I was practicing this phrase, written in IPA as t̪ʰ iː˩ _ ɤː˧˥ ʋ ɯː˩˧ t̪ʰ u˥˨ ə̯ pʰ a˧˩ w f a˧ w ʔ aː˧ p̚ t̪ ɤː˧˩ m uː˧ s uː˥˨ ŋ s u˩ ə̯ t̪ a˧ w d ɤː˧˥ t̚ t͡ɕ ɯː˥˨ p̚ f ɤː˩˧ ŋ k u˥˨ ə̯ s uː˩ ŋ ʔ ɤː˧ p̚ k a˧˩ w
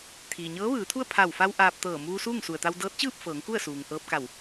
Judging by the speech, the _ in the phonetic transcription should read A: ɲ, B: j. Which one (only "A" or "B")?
A